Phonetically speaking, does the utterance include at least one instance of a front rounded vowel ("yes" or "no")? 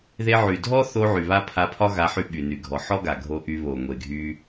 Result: yes